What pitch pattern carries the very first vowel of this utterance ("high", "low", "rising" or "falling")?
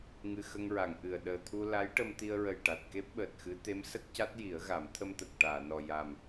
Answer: low